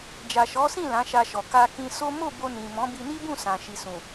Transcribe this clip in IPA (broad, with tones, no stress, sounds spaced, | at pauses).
d͡ʒ a˨ ʃ ɔ˨˦ s ĩ˦˨ l ã˨˦ ʃ a˧ ʃ ɔ˨ k a˧ k ĩ˧ s o˦ m o˦˨ b o˧ n ĩ˨ m ɔ̃˨˦ b i˧ n i˦ b ũ˦˨ s ã˨ ʃ i˨ s ũ˨